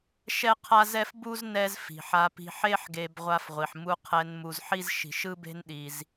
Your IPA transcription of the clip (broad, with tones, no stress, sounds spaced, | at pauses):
ʃ ɛ˥ qʰ a˥ z ɛ˥ f b u˥ z n ɛ˥ z f i̤˩ ħ a˧ p i̤˧ ħ e˥ ħ ɡ e˧ b ʁʷ a˧ f ʁʷ i˩ ħ m u˧ qʰ ɛ˧ n m u˧ z ħ i˥ z ʃ i̤˧ ʃ ɯ˥ b e̤˥ n ɗ i˧ z